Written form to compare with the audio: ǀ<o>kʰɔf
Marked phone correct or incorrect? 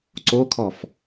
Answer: correct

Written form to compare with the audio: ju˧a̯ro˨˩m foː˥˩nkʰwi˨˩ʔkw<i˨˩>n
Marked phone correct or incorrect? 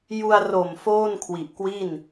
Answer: incorrect: i˥˩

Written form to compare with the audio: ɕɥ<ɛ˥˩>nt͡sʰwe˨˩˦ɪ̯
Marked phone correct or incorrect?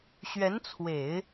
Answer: incorrect: ɛ˧˥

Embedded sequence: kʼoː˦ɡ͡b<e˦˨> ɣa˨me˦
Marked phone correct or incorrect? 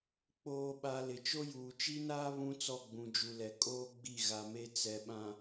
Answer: incorrect: i˦˨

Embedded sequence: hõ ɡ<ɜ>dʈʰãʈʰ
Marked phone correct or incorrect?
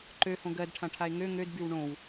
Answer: correct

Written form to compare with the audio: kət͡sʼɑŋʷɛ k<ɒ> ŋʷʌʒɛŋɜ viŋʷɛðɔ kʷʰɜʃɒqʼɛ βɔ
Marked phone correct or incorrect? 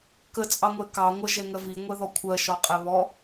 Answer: incorrect: ɑ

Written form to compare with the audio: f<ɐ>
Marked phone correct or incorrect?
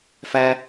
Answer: incorrect: æ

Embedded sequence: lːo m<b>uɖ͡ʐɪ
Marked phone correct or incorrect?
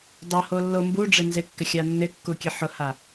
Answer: correct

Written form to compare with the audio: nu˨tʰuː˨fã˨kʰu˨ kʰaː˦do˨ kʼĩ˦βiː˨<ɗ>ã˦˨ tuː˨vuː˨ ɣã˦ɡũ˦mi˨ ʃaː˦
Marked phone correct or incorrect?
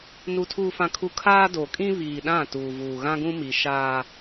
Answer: correct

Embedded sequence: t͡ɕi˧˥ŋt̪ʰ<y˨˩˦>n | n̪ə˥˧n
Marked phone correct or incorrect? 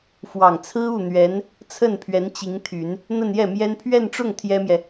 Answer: correct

